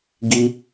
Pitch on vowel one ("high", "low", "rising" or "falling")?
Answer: high